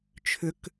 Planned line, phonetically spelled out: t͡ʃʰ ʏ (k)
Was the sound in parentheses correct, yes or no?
yes